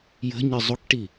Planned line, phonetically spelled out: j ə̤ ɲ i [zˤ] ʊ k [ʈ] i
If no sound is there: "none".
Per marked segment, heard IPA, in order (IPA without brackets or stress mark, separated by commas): zˤ, ʈ